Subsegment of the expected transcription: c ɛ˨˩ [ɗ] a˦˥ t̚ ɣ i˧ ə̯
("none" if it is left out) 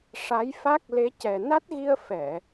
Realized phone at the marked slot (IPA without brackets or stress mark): n